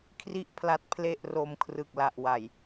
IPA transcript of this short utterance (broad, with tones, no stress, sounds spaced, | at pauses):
kʰ r i˥˩ ʔ pʰ l a˦˥ t̚ pʰ l e˥˩ ʔ r o˧ m kʰ r ɯ˨˩ k̚ l a˨˩ ʔ w a˨˩ j